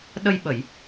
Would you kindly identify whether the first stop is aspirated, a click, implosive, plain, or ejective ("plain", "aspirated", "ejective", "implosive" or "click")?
implosive